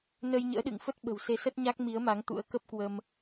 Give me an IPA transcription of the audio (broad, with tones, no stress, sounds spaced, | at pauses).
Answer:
n ə˧ j ɲ ə̰ː˧˥ ɗ ɨ̰˧˨ ŋ f ə˦˥ t̚ ɓ ə̤˨˩ w s e˨˦ s ə˦˥ t̚ ɲ a˦˥ k̚ m i˨˦ ə̯ m a˨˦ ŋ t̪ ṵ˧˥ ə̯ k ə˦˥ p̚ k w ə˧ m